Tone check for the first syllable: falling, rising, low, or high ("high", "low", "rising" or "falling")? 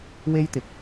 high